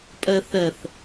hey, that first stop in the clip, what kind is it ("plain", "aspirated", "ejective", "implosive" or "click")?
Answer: ejective